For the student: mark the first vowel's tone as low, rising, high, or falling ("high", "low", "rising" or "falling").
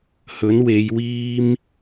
rising